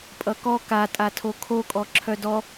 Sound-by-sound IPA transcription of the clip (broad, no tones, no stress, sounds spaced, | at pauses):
pʼ ʌ k ɔ k a tʼ a tʰ o kʰ o kʼ ɔ ǁʰ œ d ɔ